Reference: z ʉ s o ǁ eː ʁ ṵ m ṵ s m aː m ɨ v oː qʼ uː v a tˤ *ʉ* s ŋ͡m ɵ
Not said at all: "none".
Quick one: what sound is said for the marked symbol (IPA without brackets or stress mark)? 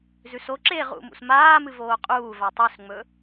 ʉ